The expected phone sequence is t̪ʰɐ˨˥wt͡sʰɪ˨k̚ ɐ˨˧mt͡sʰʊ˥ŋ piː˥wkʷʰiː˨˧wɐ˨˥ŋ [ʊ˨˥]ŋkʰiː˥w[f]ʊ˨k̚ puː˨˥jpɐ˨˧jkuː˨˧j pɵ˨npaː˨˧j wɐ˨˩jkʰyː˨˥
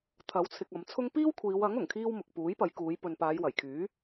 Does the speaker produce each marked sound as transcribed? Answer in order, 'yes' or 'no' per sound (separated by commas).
no, no